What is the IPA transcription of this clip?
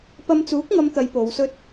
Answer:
p ɐ˧ m t͡s uː˨˥ k̚ ŋ ɐ˨˧ m t̪ ɐ˨˧ j p o˨˧ w s ɵ˥ t̚

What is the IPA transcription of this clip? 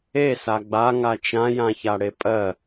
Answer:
e s a ɡ͡b a ŋ a t͡ʃ ã j ã ç a ɽ e pʼ ɜ

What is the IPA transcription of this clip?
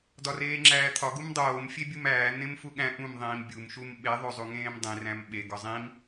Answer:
d ɒ r eː ŋ͡ǁ æː t̪ʰ ɒ ɡ u m dˤ oː m fʲ e bʲ u m æː n̪ ẽ m f u ɠ æ̃ ʔ ũ m ðˤ ĩː m bʲ u m ʃ u m ɓ e ðˤ o zˤ u ŋ ẽː m dˤ ĩ r æ̃ m ɓ e ɡ ɒ zˤ ĩ m

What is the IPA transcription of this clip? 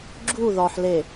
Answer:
ɡ͡ǁ u ð ɒ ħ l e

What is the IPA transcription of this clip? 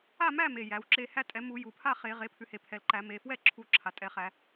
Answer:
a˥˨ m æ˥˨ m e˩˧˩ j æ˩˧˩ w ǁ e˥˨ h æ˥˨ tʼ ɛ˩˥ m u˨˩˦ j u˩ pʰ a˥˨ χ e˨˩˦ ʁ e˩˥ pʰ ʉ˩˥ h e˩ pʰ ɛ˩ l ǃ æ˨˩˦ m e˩˧˩ f w ɛ˥˨ ǁʰ u˨˩˦ ǁʰ a˩ tʼ ɛ˩˧˩ χ æ˨˩˦

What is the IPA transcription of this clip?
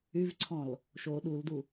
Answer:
y v ǀʰ ɔ̃ l | ʃ o ɗ u l d u

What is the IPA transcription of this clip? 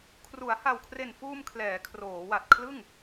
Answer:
kʰ r u˩˦ a̯ h a˨˩ w kʰ r e˨˩ n f uː˧ m kʰ l ɛː˩˦ kʰ r oː˩˦ w a˨˩ t̚ kʰ l ɯ˥˩ ŋ

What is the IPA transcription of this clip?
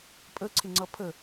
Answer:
pʼ ə ǀʰ ɪ ŋ͡ǀ ʌ pʰ ə

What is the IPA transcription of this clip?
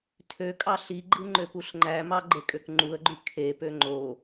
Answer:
tʰ ø kʼ ɑ ɬ i ɡ͡ǃ ɯ ŋ͡ǃ ø p u ɬ ŋ͡ǃ æ m ɑ ɡ͡ǃ e kʼ ø k ŋ͡ǃ u ə̯ ɡ͡ǃ y kʰ e p ø ŋ͡ǃ o

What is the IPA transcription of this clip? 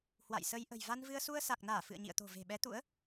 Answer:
h w a̰˧˨ j s ə˧ j ʔ ə̤˨˩ j v a˧ n v ɨ˧ ə̯ s u˧ ə̯ s a˨˩ k̚ n aː˧˩ f ɨ̰˧˨ ə̯ ɲ ḭ˧˨ ə̯ t̪ o̤˨˩ v e̤˨˩ ɓ ɛ˨˦ t̪ ṵ˧˥ ə̯

